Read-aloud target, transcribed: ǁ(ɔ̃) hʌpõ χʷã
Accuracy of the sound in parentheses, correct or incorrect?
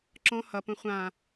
correct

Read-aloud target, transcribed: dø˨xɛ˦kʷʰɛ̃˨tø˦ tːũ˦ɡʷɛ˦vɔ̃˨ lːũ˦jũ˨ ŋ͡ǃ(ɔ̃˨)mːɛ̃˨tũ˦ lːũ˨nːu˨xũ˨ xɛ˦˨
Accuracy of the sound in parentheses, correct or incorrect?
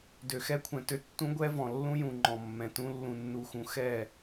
correct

